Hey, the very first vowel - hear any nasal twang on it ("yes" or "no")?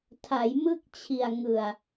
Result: no